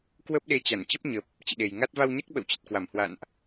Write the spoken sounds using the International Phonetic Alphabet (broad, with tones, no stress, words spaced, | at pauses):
kwə˦˥p̚ɗe˧ t͡ɕa˧˩nt͡ɕə˦˥p̚ɲə˨˩p̚ | t͡ɕḭ˧˨ɗe˨˩jŋa˦˥t̚ va˧wɲa˦˥k̚ɓə̰˧˨wt͡ɕə˨˩t̚ kwa˧˩mhwa̰˧˨nʔ